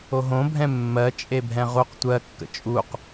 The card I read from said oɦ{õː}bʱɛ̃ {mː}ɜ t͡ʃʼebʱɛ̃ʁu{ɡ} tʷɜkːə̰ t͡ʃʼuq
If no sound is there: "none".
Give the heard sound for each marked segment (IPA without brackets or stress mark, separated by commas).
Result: õ, mː, q